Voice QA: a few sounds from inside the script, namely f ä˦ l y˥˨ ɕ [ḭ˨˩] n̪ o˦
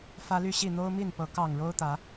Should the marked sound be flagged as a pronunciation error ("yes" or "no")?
yes